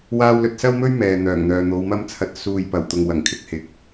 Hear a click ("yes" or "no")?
no